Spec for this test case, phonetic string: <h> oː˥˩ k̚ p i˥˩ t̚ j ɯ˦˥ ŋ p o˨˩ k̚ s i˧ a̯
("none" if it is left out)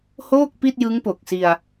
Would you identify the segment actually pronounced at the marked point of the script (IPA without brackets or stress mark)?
h